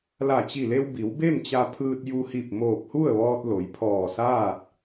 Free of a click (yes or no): yes